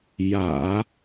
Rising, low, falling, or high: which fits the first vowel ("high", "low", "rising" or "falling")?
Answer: low